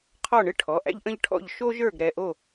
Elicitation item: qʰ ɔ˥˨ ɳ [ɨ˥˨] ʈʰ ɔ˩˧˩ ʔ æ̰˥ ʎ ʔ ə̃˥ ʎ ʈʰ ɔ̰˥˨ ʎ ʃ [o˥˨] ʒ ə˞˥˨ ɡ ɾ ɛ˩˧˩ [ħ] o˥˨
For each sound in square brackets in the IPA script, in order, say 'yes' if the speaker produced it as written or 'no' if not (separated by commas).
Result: yes, no, no